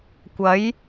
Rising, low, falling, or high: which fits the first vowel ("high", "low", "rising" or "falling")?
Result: rising